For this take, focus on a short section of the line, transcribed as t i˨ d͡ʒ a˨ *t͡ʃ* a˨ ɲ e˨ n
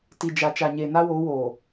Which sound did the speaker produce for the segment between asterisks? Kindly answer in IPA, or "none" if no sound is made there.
t͡ʃ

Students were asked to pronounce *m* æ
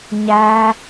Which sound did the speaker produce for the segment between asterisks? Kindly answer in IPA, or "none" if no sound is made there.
ɲ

